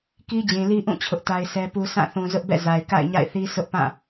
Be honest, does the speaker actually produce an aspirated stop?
yes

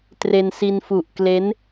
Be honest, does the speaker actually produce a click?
no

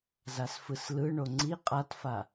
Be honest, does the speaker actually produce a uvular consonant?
yes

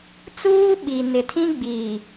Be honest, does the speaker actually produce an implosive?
yes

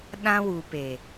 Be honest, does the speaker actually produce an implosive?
yes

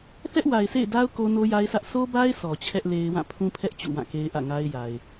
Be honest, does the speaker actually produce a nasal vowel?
yes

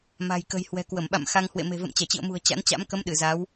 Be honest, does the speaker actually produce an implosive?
yes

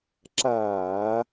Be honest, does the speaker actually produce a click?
yes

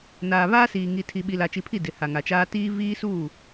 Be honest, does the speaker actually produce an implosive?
yes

